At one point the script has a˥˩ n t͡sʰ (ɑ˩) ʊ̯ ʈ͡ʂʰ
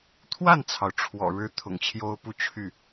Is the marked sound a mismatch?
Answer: no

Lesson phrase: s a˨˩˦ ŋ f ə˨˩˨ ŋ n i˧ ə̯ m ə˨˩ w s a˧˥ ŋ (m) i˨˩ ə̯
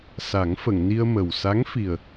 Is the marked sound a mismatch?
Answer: yes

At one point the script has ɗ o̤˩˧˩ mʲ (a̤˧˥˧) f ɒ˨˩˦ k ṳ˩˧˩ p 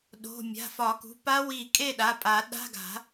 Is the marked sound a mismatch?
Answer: yes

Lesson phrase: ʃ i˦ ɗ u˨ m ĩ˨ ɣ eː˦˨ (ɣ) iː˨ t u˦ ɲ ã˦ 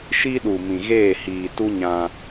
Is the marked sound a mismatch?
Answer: yes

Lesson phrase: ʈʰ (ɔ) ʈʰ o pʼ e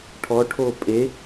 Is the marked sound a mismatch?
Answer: no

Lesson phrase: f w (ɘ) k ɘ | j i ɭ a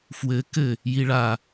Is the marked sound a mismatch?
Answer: no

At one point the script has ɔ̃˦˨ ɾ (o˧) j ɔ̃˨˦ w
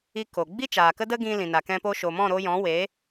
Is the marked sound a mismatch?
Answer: no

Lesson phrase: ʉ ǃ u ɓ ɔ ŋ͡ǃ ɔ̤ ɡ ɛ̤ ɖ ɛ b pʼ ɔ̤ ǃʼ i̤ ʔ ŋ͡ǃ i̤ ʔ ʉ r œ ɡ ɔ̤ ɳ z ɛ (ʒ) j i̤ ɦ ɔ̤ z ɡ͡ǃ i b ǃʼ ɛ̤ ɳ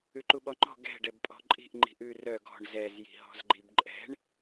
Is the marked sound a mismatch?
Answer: yes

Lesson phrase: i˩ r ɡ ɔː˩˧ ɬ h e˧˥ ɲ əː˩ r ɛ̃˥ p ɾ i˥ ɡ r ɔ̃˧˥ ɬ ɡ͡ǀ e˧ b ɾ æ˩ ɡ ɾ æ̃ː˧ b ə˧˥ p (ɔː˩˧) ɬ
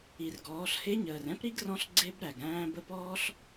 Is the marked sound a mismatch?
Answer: yes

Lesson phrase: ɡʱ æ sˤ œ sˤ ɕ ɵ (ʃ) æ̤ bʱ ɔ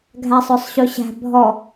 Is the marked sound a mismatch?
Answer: yes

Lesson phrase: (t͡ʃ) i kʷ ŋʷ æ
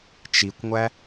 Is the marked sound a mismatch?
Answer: no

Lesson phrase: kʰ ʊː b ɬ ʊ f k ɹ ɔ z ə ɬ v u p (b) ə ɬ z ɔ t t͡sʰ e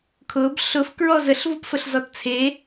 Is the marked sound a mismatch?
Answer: yes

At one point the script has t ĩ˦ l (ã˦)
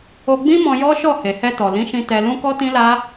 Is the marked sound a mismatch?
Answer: yes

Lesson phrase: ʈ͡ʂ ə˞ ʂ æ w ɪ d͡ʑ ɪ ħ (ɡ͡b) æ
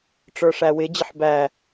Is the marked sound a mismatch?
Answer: yes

